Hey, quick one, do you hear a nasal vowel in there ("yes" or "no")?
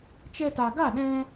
yes